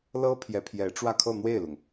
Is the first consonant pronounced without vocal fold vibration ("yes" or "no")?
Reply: no